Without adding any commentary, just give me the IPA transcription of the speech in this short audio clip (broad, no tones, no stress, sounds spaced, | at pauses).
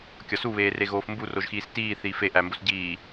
kʲ ɒ s u β eː r e ɣ oː f m b u r o ʒ x iː s t iː θ iː f e ʔ æ m b o s ɟ iː